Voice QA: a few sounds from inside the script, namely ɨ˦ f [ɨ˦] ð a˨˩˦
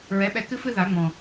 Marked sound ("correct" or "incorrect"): correct